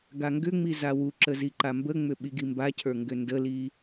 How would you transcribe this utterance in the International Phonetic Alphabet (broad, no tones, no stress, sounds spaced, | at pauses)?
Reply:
ɡ a ŋ ɡ ʏ ŋ͡m i z a w u ǁ ə z i ǃ a m b ə ŋ͡m ʏ ɓ i ɡ i m b a cʰ ə˞ ŋ ɡ ʏ n d ə l i